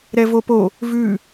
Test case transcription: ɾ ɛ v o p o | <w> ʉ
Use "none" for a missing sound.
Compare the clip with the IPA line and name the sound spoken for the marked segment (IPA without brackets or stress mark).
v